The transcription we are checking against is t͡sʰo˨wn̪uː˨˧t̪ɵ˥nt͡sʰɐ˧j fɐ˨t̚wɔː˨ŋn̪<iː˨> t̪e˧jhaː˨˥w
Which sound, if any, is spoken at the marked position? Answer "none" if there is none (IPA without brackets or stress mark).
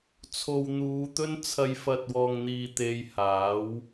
iː˨